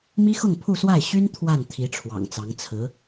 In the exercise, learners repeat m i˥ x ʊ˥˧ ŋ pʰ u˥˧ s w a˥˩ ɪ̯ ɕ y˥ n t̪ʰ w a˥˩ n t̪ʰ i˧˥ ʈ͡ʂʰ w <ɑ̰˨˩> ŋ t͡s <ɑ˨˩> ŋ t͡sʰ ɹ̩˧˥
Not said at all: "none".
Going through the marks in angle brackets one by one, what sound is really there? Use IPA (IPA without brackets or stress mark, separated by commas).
ɑ̰˨˩, ɑ˧˥